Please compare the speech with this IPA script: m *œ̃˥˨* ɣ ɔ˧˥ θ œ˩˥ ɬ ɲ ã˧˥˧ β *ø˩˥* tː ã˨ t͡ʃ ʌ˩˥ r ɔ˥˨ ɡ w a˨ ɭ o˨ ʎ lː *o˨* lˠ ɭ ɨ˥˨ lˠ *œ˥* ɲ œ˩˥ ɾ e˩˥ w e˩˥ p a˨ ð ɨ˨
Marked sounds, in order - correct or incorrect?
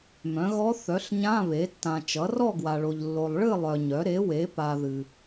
incorrect, incorrect, correct, incorrect

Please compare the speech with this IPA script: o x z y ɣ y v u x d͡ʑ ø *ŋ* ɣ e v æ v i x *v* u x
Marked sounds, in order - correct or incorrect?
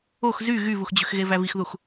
incorrect, incorrect

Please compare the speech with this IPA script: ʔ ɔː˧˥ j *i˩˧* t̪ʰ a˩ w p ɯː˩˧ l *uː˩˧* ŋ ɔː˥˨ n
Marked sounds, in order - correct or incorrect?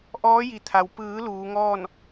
correct, correct

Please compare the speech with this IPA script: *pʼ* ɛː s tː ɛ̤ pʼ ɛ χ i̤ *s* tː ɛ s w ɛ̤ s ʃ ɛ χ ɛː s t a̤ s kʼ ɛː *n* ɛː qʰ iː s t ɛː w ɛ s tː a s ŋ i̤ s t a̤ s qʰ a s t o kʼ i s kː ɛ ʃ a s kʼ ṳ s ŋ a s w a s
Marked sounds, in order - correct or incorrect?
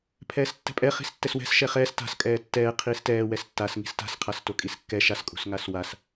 incorrect, correct, incorrect

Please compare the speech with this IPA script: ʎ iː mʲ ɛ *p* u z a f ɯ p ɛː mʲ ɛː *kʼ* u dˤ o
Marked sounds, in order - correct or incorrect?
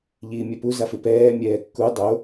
correct, incorrect

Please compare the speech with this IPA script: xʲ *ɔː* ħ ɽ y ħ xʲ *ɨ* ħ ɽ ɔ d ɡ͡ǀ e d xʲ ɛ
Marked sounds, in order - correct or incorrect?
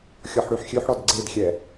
incorrect, incorrect

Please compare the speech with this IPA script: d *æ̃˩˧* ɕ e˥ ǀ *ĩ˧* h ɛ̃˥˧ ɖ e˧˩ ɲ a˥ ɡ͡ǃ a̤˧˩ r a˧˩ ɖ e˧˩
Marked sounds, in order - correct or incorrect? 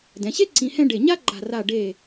incorrect, correct

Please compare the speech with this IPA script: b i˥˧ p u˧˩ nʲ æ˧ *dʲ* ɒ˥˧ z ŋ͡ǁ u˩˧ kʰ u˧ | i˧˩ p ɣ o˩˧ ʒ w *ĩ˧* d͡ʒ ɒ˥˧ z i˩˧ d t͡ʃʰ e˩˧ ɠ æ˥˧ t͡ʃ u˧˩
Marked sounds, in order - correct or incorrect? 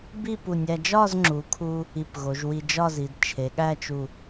incorrect, incorrect

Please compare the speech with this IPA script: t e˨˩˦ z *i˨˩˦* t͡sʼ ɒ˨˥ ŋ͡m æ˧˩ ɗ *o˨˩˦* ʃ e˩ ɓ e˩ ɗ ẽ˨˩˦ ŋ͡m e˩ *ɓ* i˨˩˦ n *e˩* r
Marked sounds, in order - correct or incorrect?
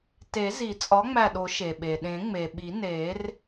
correct, correct, correct, incorrect

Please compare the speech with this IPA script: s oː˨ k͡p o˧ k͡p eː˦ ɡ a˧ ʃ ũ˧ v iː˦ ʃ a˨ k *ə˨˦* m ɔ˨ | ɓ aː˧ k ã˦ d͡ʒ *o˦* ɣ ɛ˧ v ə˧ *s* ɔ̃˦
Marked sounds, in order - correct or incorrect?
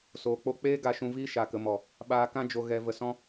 incorrect, incorrect, correct

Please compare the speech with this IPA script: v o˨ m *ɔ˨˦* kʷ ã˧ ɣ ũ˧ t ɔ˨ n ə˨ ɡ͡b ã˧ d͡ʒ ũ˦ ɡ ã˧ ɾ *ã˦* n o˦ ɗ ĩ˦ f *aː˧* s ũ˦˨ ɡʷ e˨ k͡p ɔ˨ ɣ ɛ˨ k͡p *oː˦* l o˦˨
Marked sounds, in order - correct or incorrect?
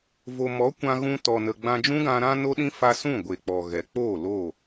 correct, correct, incorrect, incorrect

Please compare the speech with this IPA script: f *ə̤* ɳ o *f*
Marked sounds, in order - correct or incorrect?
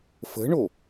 correct, incorrect

